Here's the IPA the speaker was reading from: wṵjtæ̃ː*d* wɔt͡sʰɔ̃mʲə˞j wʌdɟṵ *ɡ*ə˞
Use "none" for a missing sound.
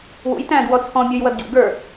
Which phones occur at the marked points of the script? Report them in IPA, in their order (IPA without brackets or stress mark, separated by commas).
d, ɡ